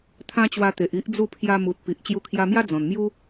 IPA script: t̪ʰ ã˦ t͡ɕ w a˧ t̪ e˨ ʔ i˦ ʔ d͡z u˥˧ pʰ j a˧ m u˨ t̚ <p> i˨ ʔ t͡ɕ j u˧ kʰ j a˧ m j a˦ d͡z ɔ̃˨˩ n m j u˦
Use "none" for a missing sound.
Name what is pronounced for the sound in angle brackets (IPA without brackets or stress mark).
p